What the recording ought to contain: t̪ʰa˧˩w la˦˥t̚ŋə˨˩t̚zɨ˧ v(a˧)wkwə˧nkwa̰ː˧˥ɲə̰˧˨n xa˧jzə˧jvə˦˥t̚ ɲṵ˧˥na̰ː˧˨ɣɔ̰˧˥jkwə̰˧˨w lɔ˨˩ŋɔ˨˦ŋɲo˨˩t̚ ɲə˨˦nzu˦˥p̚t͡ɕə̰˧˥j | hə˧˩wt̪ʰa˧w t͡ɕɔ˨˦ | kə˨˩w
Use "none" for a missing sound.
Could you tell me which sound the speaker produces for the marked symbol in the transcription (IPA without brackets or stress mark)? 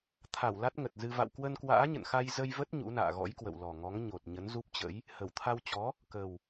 a̰˧˨